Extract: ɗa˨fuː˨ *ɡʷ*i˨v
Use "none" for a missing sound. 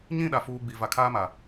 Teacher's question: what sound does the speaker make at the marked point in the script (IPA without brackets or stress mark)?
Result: ɡ͡b